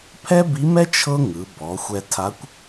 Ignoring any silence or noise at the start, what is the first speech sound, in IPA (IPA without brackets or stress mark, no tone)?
pʰ